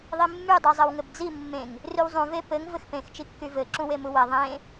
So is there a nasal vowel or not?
yes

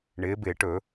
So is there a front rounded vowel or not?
no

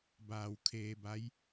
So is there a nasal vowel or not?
no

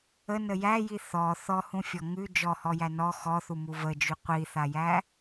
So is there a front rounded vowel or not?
yes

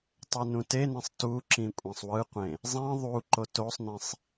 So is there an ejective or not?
yes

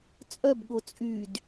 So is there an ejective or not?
yes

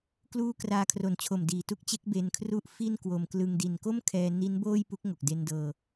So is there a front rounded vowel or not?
no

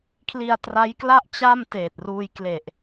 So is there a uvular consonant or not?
no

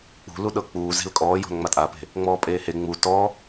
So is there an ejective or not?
yes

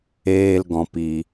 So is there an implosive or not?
no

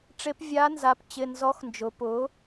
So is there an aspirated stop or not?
no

